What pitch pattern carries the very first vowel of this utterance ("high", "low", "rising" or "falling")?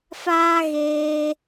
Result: high